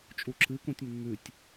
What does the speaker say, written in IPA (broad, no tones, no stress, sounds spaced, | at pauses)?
t͡ʃʼ u ǁ ɨ k ũ tʲ mː ʉ tʲ